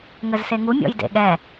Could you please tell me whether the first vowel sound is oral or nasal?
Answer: oral